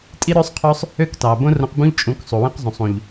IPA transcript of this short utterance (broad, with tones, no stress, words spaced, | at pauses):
tʼi˦ɾø˦sˤqʰø˦sˤ | ø˦ktɑ˨ bõ˦rõ˧qbũ˦ʎ t͡ʃʼũ˨˦k sˤu˨wĩ˦qzˤũ˨sˤ ũ˨ʎ